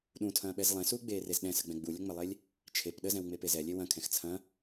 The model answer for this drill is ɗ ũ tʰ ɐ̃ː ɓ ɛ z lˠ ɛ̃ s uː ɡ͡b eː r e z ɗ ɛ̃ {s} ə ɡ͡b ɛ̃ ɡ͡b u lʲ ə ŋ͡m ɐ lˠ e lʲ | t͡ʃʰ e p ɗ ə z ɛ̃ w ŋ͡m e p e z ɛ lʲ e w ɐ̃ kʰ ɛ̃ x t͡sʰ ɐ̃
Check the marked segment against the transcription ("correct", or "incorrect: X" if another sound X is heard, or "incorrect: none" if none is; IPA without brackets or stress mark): correct